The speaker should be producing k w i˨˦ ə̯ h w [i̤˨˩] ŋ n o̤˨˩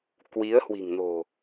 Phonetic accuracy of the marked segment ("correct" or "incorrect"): correct